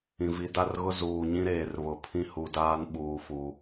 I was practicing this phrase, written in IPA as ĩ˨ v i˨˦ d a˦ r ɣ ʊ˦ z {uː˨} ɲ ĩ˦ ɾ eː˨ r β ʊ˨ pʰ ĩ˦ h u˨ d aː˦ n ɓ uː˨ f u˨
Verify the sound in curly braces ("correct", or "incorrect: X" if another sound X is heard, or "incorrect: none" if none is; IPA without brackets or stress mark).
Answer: correct